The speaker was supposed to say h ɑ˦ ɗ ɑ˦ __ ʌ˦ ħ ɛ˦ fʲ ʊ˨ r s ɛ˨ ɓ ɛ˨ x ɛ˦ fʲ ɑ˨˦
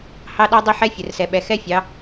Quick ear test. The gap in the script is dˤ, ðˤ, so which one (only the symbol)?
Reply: dˤ